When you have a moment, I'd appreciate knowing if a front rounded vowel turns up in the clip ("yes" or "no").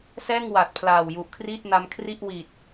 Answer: no